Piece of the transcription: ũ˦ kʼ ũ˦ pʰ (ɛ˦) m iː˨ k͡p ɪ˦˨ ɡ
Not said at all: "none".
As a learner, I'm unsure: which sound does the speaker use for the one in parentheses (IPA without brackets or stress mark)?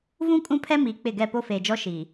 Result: ɛ˦